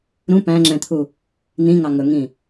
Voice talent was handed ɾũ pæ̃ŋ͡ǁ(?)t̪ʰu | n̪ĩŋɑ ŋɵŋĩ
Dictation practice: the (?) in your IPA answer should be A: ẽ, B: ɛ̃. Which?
B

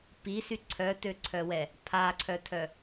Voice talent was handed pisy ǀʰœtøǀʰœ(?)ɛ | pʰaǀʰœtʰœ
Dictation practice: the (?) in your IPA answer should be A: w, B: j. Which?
A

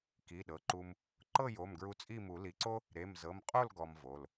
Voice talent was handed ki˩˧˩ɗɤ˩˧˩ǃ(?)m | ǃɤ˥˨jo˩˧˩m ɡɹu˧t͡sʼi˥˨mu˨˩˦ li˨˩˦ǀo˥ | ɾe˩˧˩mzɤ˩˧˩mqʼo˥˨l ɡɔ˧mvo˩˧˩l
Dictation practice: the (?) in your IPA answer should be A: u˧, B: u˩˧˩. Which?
A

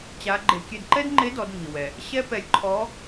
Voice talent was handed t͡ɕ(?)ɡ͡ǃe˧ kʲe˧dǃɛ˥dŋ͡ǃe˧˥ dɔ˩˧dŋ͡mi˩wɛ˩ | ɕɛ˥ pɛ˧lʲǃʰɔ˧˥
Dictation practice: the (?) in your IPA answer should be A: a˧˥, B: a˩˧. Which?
A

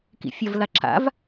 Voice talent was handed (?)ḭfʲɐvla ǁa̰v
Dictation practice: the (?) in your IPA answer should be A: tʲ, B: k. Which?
B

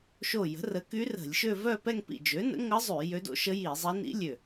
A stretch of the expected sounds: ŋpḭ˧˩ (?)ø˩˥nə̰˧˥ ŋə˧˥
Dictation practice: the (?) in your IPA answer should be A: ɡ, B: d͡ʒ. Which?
B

